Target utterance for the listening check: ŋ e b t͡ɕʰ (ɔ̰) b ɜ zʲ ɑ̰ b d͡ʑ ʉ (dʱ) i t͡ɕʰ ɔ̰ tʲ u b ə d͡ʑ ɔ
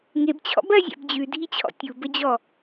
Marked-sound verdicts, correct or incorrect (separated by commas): correct, correct